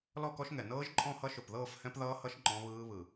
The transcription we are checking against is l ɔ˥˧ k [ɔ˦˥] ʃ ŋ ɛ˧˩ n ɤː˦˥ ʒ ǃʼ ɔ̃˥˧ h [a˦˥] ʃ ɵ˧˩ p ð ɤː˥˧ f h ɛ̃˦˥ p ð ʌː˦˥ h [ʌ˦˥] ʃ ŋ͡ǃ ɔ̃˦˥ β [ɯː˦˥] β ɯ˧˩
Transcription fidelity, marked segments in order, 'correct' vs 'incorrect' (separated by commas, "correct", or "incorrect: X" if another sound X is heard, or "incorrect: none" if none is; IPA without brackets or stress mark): correct, incorrect: ʌ˦˥, correct, correct